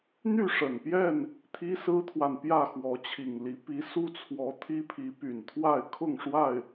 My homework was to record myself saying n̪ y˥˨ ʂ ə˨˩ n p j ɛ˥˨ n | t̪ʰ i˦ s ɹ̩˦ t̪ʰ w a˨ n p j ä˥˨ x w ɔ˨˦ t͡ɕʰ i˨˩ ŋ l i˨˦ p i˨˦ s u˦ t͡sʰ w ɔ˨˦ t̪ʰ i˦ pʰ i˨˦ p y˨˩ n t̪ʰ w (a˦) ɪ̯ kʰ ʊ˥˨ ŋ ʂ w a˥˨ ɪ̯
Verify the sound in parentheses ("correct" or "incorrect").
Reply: incorrect